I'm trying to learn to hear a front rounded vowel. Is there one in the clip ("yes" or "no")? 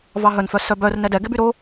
yes